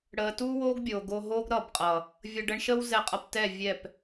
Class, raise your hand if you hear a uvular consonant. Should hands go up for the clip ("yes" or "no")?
yes